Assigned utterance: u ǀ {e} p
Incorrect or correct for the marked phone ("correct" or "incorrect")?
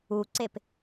correct